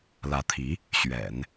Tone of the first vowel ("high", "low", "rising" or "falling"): rising